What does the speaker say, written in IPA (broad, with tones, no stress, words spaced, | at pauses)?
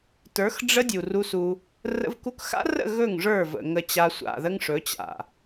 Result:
tə˞˨˦x ɖ͡ʐə˦ dʲu˨ru˦su˦ | rə̰˦vku˦k xa̰˦rə̰˦˨ ɣɵ˦˨ŋ ʐə˞˦˨və̰˨ ŋə˦t͡ɕa˦ sʷa̰˨ðə˦ŋʂɵ˨˦ t͡ɕa̰˨